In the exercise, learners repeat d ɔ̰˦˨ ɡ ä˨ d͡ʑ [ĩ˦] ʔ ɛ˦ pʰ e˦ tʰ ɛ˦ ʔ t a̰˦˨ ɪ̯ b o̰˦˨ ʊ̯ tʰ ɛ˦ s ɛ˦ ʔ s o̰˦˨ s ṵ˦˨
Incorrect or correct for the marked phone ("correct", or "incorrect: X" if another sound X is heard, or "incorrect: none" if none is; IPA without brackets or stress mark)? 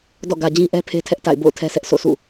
correct